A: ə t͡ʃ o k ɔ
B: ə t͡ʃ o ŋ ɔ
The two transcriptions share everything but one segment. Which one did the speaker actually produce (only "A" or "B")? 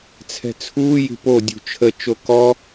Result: A